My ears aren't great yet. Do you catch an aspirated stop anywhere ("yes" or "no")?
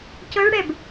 no